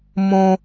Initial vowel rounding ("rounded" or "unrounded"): rounded